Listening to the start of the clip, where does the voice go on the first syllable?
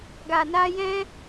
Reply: low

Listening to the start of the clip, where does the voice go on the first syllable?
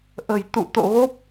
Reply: low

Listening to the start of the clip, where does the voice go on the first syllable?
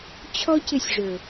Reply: high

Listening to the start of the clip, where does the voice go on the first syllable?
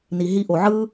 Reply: low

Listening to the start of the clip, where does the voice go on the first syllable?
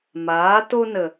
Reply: rising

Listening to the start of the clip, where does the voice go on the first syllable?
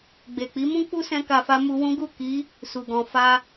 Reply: low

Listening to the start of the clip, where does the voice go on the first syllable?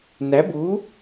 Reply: rising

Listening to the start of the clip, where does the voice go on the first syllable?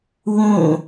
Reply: falling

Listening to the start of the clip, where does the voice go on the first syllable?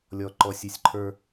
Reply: low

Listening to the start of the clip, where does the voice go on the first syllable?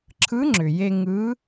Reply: rising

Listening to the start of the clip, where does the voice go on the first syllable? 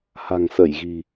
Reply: low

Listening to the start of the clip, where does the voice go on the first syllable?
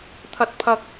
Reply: high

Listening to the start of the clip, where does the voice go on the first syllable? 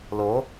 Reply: rising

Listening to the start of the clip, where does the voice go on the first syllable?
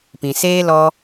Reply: low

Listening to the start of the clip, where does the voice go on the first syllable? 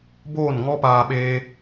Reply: falling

